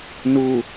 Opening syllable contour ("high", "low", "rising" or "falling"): low